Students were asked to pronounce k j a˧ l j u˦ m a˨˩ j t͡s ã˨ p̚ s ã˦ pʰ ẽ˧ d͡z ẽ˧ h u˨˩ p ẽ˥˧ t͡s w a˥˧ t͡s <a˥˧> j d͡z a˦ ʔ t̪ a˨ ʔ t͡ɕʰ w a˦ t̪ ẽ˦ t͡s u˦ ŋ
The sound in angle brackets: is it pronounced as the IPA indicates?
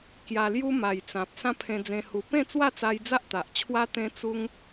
no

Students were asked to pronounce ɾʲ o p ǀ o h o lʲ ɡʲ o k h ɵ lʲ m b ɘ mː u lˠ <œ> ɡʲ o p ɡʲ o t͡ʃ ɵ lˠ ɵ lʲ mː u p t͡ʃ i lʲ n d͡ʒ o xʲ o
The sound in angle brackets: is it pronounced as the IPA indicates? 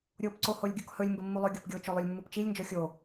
no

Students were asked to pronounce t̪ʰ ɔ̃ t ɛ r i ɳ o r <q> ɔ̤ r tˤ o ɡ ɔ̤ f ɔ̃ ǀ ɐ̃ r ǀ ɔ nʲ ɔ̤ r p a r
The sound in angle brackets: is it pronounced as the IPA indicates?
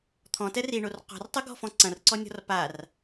yes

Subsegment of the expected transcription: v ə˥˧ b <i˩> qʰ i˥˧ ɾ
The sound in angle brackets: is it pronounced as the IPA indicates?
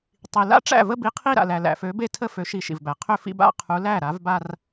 no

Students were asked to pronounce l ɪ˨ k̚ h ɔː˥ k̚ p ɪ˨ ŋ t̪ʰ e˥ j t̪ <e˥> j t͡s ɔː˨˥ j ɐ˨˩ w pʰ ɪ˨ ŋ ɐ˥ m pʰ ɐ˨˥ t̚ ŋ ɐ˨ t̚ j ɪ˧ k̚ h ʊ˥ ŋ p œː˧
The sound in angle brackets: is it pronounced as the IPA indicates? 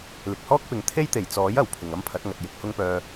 no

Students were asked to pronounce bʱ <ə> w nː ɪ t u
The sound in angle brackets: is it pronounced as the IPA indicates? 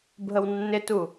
yes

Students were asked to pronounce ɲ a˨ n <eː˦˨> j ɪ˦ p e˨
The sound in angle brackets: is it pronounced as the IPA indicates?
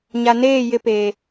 yes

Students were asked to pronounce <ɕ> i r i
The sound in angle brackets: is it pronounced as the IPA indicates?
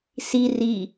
no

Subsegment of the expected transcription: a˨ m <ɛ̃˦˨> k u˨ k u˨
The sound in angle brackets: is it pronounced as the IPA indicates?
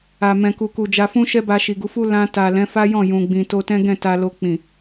no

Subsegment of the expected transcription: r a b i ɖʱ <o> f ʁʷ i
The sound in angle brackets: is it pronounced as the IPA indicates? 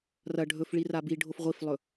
yes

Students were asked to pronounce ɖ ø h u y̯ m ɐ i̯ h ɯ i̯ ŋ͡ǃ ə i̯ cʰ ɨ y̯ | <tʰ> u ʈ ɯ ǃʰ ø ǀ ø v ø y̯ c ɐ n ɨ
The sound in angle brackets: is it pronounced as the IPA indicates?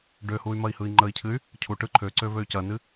no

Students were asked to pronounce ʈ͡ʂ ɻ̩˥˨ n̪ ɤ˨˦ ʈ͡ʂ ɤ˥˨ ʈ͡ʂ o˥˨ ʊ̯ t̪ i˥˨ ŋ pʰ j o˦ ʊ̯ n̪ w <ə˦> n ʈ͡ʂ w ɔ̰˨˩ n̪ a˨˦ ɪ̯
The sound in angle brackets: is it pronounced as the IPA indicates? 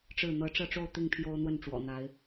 no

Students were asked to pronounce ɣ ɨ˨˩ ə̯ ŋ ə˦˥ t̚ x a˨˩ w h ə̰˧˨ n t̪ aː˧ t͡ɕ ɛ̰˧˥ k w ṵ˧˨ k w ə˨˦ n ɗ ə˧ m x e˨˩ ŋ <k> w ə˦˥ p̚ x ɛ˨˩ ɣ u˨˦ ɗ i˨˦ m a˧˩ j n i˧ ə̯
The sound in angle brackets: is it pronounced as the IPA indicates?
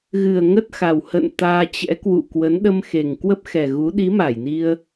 yes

